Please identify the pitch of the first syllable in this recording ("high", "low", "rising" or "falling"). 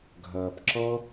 low